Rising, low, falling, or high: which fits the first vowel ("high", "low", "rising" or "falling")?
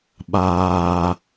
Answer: low